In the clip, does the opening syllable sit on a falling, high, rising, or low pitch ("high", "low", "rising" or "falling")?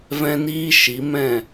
high